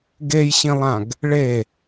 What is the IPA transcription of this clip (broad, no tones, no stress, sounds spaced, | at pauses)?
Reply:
ɡ e j ɕ ĩ lˠ ã ɡ | ɭ e